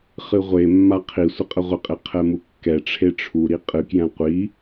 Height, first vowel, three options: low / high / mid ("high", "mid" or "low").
high